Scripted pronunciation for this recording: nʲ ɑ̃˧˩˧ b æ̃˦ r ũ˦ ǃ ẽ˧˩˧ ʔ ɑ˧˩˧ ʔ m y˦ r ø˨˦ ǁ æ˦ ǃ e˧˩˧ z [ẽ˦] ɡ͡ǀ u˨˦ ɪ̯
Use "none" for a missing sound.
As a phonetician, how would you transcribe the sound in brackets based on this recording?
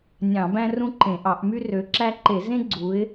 ẽ˦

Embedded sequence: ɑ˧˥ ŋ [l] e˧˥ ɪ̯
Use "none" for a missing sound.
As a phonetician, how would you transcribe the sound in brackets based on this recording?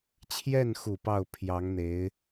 n̪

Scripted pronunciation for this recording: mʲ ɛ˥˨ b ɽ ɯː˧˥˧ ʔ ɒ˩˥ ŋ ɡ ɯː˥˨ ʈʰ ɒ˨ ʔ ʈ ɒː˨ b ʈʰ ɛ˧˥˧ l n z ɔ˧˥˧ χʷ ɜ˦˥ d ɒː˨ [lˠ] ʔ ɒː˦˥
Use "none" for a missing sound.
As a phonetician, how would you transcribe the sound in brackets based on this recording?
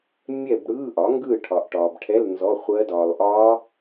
lˠ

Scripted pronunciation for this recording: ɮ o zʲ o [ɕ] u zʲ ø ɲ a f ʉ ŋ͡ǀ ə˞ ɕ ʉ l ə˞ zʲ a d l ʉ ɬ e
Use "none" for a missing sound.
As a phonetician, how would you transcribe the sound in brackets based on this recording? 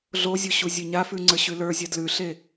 ɕ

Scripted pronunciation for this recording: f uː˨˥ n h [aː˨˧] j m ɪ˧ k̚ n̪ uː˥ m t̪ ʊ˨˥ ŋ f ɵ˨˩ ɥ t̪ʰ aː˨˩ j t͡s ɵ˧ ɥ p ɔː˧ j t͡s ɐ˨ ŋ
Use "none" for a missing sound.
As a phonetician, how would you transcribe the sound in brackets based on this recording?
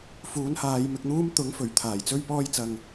aː˨˧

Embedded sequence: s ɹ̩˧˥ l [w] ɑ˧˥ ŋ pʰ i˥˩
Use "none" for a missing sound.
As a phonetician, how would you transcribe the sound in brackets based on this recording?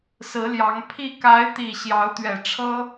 j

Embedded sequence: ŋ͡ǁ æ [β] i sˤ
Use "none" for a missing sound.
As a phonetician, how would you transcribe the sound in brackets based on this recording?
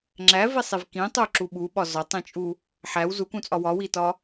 v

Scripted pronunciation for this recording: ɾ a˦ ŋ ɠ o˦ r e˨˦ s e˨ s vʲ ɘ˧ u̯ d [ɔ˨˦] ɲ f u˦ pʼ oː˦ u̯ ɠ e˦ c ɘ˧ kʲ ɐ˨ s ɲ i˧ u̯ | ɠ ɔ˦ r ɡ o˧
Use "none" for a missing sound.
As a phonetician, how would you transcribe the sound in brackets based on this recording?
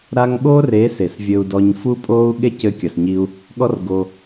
ɔ˧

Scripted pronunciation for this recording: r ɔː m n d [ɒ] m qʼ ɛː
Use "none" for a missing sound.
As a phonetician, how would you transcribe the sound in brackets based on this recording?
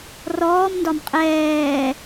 ɒ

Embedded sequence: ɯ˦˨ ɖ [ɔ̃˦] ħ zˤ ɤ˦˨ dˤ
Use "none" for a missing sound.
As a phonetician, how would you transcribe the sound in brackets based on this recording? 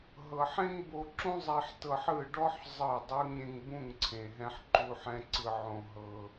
ɔ˦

